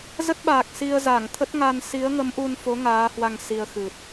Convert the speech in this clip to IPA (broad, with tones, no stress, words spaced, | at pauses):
zə˦˥t̚ɓaː˨˩k̚ si˧ə̯za˧˩ŋ t̪ʰə˦˥t̚ŋa˧n si˨˦ə̯ŋə˨˦mʔu˧nfo˨˦ ŋaː˨˦hwa˧ŋ si˧ə̯xɨ˨˩t̚